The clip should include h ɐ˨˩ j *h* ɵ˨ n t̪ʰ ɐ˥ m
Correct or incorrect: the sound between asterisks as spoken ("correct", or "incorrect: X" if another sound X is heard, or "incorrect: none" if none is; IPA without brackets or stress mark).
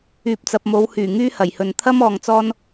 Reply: correct